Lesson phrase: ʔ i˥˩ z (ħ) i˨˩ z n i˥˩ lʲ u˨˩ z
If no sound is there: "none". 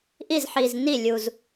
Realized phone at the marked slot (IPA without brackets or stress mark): ħ